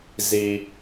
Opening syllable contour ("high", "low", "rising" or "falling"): high